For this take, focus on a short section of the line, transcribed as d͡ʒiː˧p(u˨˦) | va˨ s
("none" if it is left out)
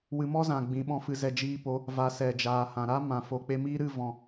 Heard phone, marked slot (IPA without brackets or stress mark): o˨˦